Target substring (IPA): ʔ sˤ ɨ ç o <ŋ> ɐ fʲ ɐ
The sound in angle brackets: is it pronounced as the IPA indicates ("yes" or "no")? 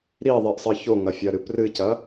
yes